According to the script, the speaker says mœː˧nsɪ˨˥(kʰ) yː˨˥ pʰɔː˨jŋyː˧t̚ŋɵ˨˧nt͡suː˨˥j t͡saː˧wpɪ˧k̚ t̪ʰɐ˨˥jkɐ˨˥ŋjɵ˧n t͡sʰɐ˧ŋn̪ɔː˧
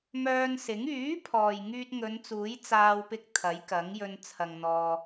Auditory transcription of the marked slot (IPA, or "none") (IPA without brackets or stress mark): ŋ